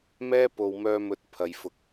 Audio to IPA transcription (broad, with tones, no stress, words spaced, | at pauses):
mɛː˥po˨wmœː˧mɵ˨˥t̚ pʰɐ˨jfʊ˨k̚